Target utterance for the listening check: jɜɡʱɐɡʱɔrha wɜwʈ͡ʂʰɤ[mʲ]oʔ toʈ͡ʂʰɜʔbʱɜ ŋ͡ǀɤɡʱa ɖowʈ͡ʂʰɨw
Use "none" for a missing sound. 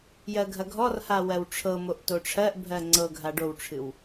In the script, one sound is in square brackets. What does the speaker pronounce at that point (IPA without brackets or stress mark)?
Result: m